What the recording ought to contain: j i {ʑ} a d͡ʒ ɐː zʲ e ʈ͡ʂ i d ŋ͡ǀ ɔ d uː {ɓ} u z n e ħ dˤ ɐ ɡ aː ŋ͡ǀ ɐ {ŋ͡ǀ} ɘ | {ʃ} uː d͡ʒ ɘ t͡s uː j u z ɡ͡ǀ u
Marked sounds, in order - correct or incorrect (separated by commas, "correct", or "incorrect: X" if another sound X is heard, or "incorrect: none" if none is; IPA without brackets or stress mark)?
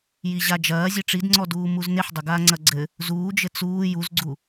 correct, incorrect: m, incorrect: ɡ͡ǀ, incorrect: z